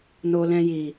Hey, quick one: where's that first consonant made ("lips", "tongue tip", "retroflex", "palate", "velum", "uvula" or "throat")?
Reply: tongue tip